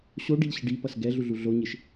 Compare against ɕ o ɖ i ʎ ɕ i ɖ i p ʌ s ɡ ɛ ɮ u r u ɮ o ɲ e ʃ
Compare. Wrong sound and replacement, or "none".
r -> ɮ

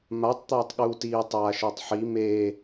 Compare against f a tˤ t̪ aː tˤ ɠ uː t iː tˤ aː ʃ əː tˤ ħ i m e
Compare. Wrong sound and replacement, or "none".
f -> m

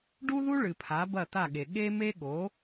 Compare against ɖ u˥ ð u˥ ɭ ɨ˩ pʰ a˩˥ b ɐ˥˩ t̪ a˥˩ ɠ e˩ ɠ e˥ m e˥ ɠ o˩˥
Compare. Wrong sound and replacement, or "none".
none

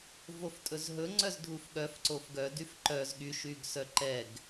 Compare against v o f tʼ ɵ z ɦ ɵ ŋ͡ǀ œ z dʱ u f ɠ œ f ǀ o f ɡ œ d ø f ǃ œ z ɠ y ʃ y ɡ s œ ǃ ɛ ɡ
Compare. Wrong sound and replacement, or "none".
ø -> y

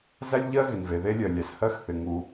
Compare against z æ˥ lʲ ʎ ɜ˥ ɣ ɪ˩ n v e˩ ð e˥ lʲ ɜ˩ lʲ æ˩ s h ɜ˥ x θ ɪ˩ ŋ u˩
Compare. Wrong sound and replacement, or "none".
none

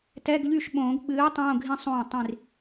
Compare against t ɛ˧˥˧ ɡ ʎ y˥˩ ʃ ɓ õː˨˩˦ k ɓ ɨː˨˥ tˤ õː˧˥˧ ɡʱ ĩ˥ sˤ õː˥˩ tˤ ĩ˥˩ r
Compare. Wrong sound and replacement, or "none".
k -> ɡ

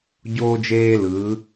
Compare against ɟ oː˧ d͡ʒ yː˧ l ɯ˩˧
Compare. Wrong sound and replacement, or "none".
yː˧ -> eː˧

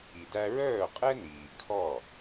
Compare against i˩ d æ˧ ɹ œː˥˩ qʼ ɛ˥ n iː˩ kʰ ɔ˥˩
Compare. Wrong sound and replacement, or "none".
none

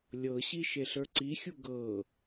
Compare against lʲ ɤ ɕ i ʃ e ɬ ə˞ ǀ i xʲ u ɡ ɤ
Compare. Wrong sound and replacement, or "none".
none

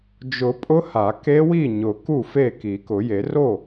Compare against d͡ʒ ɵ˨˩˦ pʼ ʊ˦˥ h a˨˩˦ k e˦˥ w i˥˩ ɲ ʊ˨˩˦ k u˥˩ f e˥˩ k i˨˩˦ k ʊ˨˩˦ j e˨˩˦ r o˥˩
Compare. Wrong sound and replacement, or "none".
ɵ˨˩˦ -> ʊ˨˩˦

